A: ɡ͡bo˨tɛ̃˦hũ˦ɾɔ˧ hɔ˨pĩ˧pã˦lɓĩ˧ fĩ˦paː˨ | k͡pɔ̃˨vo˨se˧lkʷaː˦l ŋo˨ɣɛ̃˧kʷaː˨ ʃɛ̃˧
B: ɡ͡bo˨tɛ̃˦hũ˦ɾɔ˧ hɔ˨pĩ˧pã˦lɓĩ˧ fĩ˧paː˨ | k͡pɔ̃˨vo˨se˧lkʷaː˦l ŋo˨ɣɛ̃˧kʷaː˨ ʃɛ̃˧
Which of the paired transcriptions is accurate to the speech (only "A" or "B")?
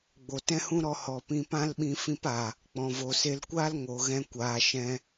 B